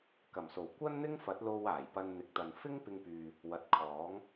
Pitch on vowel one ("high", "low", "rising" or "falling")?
low